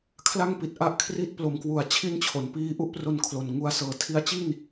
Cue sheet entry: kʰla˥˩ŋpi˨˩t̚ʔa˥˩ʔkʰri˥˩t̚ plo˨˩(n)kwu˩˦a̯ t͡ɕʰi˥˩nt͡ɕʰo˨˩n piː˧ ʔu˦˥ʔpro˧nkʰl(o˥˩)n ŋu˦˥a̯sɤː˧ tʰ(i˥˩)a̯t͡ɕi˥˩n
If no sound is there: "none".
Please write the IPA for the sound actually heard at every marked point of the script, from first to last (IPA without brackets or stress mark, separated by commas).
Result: m, o˨˩, i˧